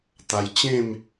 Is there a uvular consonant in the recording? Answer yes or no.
no